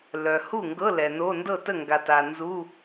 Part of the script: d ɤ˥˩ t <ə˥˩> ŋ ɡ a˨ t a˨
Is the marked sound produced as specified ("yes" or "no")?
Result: yes